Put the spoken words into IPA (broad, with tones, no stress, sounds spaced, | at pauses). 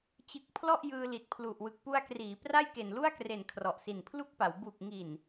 t͡ɕ ɯ˨˩ k̚ pʰ l ɔ˥˩ ʔ j ɯː˧ l i˨˩ t̚ pʰ l u˨˩ ʔ w ɯ˨˩ k̚ p u˧ a̯ k r iː˩˦ p r a˥˩ j k e˨˩ n l u˥˩ a̯ k r e˨˩ n kʰ r ɔ˨˩ ʔ s i˨˩ n pʰ l u˥˩ k̚ p a˩˦ w b u˨˩ k̚ ŋ i˨˩ n